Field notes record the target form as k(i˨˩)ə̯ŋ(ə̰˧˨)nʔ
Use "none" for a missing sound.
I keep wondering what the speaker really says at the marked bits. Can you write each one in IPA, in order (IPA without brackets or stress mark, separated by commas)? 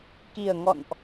i˨˩, ɔ̰˧˨